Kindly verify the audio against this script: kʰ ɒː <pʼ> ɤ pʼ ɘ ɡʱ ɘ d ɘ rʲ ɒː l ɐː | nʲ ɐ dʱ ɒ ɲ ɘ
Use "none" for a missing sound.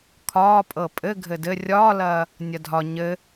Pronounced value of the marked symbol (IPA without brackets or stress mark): pʼ